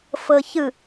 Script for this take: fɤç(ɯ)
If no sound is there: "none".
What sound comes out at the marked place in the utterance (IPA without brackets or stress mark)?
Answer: ɯ